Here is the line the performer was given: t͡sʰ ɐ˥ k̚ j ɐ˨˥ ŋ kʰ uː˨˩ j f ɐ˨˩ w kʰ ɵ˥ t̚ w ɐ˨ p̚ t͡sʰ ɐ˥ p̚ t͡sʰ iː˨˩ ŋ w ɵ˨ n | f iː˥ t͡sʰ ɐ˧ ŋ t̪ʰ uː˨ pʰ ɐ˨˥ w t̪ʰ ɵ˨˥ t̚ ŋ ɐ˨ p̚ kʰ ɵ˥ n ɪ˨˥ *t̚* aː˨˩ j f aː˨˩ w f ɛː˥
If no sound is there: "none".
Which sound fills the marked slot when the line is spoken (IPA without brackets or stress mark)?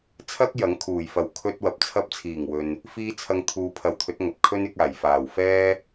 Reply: k̚